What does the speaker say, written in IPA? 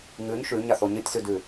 ŋ ʉ ɲ ʃ ʉ ɲ a θ o ɲ ɨ tʲ s ʉ d ʉ

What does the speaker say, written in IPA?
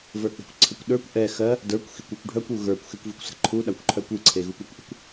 v ə˞ k͡p e̤ kʷ ǀʰ ə kʷ ɗ ə˞ kʷ ʔ ɛ x ɜ | d ə˞ kʷ x i kʷ e kʷ ɖʱ œ kʷ u ɣ ə˞ kʷ x e kʷ v i kʷ s ə̤ ǃʰ u ɗ a kʷ ǃʰ œ kʷ i ǀʰ e ɣ u kʷ ɜ kʷ ʔ ə̤ kʷ

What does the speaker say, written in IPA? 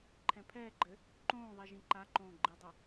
ǃʰ ɛ̃ pʰ ɛː ɡ͡ǃ ɘ | ǃ õː ðˤ i ʒ ĩ ǃ a ǃ õː ɡ͡ǃ i dˤ i

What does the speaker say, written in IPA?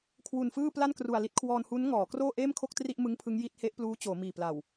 kʰ w u˨˩ n f ɯː˥˩ p l a˥˩ n k r u˨˩ a̯ l i˦˥ t̚ kʰ w ɔː˧ n h u˦˥ n ŋ ɔː˩˦ k r oː˥˩ ʔ eː˥˩ m kʰ o˥˩ k̚ t r i˥˩ ʔ m ɯ˦˥ ŋ pʰ ɯ˦˥ ŋ j i˦˥ t̚ h e˦˥ ʔ p l uː˦˥ t͡ɕ oː˩˦ m iː˨˩ p l a˨˩ w

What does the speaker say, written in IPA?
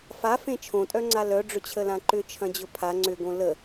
f a f ẽ t͡ʃʰ õ tʼ œ ŋ͡ǀ a l œ ɖ͡ʐ ʏ t͡ɕʰ ə l ã ǃ ʏ t͡ʃʰ ɐ̃ d͡ʑ ʊ pʰ a ŋ͡ǀ ʏ ɡ õ l ə

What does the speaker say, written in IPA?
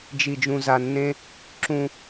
d͡ʒ i˦ d͡ʒ ũ˦ z a˦ nː ẽ˥ | ǁ ũ˦

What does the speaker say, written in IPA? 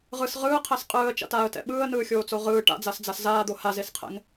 ʁ ɯ s ʁ ɯː qʰ ɛ s qʼ ɯː ə̯ t͡ʃ a̰ t aː ə̯ t ɛ̰ ɓ ɯː ə̯ n ɯː xʲ oː t͡s o ʁ ɯː ʈ a̰ d͡z a s d͡z a s z aː d̪ o h a z e s qʰ ɛ̰ ŋ

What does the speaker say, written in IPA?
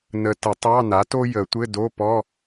n ə˨ t ə˨˩˦ tˤ ɑ˧˥˧ n a˩˥ t o˥ j ə˨˩˦ tʷ ɘ˧˥˧ d o˧˥˧ p ɔ˧˥˧

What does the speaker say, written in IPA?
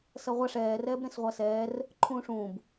s ʌ ʁʷ a ʂ ɛː r ɛː b ɾ ẽ s ʁʷ a s ɛː r | ǃʰ ũː ʂ ũː b

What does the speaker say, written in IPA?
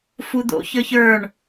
f u d̪ o̰ ç ə˞ ç ə˞ ɳ

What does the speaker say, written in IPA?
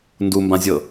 n d u m b ã zʲ ɤ

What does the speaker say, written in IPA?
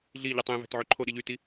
ɮ i ʎ ɯ tˤ ẽ v æ̤ t ʕ ø ǃʰ o ɗ i ʎ y t i

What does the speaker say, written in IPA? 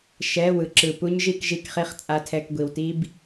ʃ ɛ˧˥˧ w ɯ˨ ǁ ɯ˨ p u˦˥ ɲ ʒ i˥˧ k ʒ i˥˧ k χ i˥˩ χ t͡sʼ a˦˥ tʰ ɛ˧˥˧ k ɡʷ i˨ w t i˦˥ b

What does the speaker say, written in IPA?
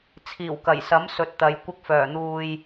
t͡sʰ iː˨˩ w k ɐ˨˩ j s ɐ˨˥ m s ɵ˨˥ t̚ t̪ ɐ˨˧ j kʷ ɪ˧ k̚ f œː˨˩ n̪ uː˨ j

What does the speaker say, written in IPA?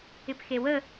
ɪ p x e w ə

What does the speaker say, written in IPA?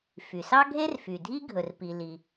f y˩ s ɑ˥ ɡʱ e˥ r f y˩ dʱ i˥ ɡʱ ɵ˩ r p i˩ l i˩

